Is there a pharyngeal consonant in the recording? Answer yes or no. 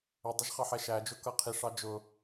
yes